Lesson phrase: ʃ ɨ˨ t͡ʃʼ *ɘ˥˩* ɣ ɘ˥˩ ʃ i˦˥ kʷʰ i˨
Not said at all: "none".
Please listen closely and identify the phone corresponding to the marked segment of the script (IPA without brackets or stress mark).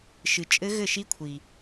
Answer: ɘ˦˥